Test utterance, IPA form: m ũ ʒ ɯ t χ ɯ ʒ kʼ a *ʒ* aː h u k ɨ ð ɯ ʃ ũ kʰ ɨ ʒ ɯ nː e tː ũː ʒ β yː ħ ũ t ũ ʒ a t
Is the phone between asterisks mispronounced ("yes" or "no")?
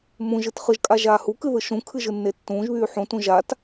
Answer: no